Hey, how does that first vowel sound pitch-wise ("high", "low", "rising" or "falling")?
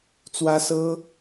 high